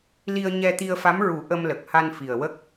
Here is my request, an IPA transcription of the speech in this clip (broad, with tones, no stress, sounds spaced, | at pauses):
l i˧ ə̯ ɲ ɛ˧ t̪ i˧ ə̯ f a˧˥ m ɹ u˨˩˦ ʔ ə˧ m l ə˨˩ k̚ h a˧ n f i˨˩ ə̯ w ə˦˥ k̚